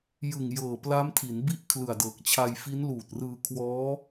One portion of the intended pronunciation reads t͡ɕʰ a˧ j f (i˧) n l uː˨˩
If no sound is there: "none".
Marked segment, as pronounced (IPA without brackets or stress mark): i˦˥